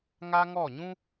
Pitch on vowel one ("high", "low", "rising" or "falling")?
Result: high